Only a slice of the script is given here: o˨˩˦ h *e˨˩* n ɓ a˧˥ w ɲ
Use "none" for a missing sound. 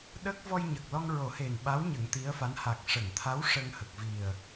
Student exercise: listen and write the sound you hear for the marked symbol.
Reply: e˨˩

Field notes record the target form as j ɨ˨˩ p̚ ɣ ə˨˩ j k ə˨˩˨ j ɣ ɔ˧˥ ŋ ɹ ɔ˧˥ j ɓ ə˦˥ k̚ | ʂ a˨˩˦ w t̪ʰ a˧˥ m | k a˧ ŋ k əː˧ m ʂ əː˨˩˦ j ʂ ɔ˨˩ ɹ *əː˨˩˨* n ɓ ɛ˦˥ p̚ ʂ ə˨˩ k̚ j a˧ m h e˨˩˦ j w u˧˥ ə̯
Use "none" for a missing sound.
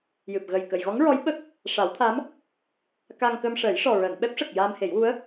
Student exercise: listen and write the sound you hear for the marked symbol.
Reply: əː˨˩˨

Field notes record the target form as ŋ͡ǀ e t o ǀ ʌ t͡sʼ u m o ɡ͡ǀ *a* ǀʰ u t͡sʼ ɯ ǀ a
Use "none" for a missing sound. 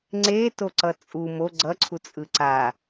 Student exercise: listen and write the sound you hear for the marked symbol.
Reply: ʌ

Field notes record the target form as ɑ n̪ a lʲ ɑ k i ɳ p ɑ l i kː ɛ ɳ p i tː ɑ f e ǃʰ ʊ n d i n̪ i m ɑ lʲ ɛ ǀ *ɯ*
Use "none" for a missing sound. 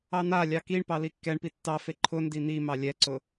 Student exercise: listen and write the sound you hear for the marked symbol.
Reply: ʊ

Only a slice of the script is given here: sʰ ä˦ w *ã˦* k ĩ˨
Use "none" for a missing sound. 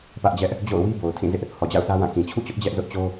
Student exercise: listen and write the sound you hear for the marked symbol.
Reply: ã˦˨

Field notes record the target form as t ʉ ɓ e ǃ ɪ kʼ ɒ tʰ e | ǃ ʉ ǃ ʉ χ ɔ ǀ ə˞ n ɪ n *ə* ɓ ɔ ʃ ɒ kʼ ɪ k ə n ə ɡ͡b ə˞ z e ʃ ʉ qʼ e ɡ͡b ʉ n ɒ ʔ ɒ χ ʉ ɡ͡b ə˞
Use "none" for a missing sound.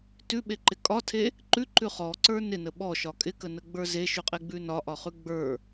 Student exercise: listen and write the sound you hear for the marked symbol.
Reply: ə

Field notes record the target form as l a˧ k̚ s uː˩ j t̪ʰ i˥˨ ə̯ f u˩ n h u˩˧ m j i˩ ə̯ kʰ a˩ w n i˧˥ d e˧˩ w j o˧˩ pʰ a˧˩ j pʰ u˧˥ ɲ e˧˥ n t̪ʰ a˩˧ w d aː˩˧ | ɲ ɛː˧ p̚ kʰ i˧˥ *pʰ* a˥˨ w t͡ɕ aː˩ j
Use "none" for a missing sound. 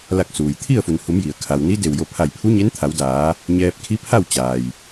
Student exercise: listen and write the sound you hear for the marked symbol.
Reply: pʰ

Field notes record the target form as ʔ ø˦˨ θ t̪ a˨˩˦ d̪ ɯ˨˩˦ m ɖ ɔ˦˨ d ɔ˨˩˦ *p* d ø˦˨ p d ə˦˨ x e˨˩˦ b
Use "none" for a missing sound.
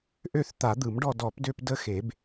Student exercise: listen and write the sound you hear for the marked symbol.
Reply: p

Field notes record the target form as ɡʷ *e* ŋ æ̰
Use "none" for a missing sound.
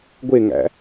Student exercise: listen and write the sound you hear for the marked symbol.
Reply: e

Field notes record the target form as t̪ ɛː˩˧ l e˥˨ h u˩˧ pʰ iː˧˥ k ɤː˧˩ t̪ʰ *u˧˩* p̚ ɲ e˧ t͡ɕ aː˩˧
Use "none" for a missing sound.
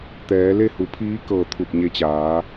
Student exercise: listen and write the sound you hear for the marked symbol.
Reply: u˧˩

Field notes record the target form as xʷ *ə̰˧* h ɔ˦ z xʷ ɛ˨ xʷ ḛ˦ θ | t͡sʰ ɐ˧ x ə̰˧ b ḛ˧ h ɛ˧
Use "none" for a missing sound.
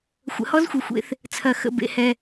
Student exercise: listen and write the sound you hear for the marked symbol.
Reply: ə̰˨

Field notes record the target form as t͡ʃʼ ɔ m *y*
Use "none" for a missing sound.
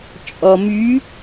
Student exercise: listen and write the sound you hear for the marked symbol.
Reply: y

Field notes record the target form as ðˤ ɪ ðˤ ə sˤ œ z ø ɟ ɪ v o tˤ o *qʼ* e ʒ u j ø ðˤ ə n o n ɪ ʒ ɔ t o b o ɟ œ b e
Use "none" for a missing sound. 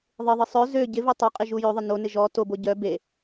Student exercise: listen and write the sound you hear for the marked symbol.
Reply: qʼ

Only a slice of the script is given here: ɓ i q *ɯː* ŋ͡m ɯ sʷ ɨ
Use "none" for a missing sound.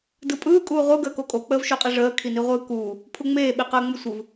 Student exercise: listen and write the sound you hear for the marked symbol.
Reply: əː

